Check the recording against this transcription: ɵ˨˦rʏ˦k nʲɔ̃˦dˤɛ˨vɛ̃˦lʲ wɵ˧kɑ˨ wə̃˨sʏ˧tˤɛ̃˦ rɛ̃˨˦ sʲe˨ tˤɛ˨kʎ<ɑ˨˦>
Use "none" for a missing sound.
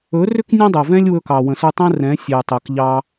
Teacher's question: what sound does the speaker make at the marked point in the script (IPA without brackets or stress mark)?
ɑ˦